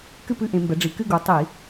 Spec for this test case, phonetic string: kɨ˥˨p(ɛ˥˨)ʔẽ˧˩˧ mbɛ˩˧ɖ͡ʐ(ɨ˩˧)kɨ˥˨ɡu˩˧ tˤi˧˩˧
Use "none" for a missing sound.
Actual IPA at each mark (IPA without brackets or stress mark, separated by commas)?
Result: ɨ˥˨, i˩˧